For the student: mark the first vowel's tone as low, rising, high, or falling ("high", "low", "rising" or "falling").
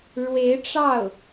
rising